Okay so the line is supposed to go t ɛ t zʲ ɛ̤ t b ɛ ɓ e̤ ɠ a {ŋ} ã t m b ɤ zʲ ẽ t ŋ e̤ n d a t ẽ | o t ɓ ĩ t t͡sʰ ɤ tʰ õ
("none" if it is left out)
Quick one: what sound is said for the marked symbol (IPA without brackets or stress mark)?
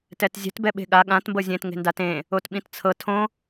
ɠ